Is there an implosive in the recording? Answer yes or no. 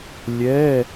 no